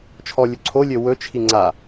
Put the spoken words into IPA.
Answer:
t͡ʃʰɔlʲɵ ǀʰolʲø wɵt͡ʃʰi ŋ͡ǀa

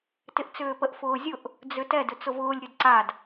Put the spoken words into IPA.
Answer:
tɪʔt͡sʏːpəʔ fʊːzʲʊʔ | d͡zʏtɛ dʏt͡sʊvʊːlʲ ɾʲʊdǀad

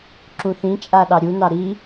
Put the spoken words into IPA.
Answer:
ǁũθĩt͡ʃʼa ɗɑɾʲunɑ ɾi

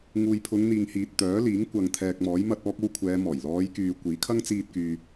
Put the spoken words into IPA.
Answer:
ŋuː˨jpʰʊ˨˧ŋn̪iː˨ŋ hiː˨t̚t̪œː˨˥liː˨˥ŋ kʷɐ˨ŋt̪ʰɛː˨k̚mɔː˨˥jmɐ˧t̚ ɔː˧k̚o˧w kʷʰɛː˨˧mɔː˨˩j lɔː˨˧jkyː˨ kʷiː˨˥kʰɐ˥ŋ t͡siː˧t̚kyː˨

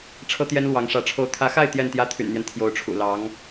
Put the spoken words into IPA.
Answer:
ʈ͡ʂʰɤ˥t̪jɛ˥n lwɑ˧˥ŋʂä˧˥ʈ͡ʂʰo˥˩ʊ̯ t̪ʰä˧˥xa˥˧ɪ̯ t̪jɛ˥˩nt̪jä˥t̪ʰy̰˨˩nn̪jɛ˦n t̪ʰjo˧˥ʊ̯ʈ͡ʂʰṵ˨˩ lɑ˧˥ŋ

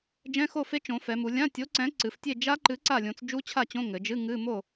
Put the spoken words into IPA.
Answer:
d͡ʒɛ̃˧˥˧xo˥˨fe˦˥ t͡ʃõ˩˧fɛ˩˧mu˩˧ lʲã˧˥˧tʲo˨˥ǀɛ̃˨˥ ǀɨ˩˧ftʲe˥˨ d͡ʒa˦˥ǃɨ˨˥ ǀa˥˨lʲõ˨˥t͡s d͡ʒu˦˥t͡ɕʰa˥˨t͡ɕõ˧˥˧ ŋɘ˩˧d͡ʒɨ˧˥˧ ŋɨ˧˥˧ mo˥˨

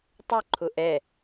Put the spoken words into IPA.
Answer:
tˤʏǃʰʊ ʔɛ

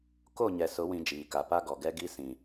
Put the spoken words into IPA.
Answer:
ko˦˨ ɲɛ˨sʊ˨˦ wĩ˨ d͡ʒiː˨ka˨ pa˦ɡɔ˨ɡɛ˦ ɡi˦sĩ˨

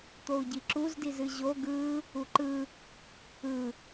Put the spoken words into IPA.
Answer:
t̪ou̯ɟiǁuz dizɨʑo ɡɯ | uǃɯ | ɯ

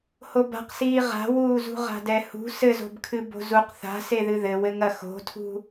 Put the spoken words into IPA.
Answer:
hoba̤qsiː ʁa̤wuːzṳ ʁa̤dɛhṳ sɘzo̤bkʰɨ bo̤zuq θa̤seðɨ ðɘwɘŋɐ xo̤tʰṳ

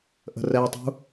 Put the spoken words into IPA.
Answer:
ʔə̤rɛtˤṳ

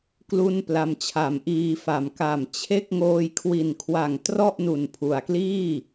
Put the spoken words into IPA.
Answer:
klu˥˩npla˧mt͡ɕʰa˨˩m ʔiː˧fa˨˩m ka˨˩mt͡ɕʰe˥˩k̚ ŋoː˧jkʰwi˨˩nkʰwa˨˩ŋ trɔ˥˩ʔnu˨˩npʰu˩˦a̯kliː˥˩

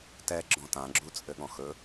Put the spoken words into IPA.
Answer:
tɛ ɡ͡ǁɔ̃tã ɡ͡ǁut͡sʼɘɠɔ̃xɵ

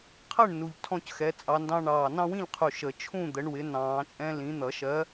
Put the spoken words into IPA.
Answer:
qʰɜ˥˨ɳnu˨˩ʎ tʰɔ̃˦c xɛ˨˦t͡sʼɑ˨˦ndɑ̃˦ ɳɑː˨˩nɑ̃˦wĩ˥˨ʎqʰu˨˩ ʃə˨˩˦ t͡ʃʰũ˥˨d̪ə˨˦ɳwɪ˨˦ nɑ̃ː˨˩˦t͡ʃʼɛ̃˦ lĩ˨˦ n̪ʌ˨˩˦ʃɜ˨˦

